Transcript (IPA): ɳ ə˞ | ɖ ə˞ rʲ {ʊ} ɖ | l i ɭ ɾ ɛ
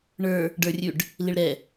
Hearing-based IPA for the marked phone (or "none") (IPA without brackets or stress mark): ʉ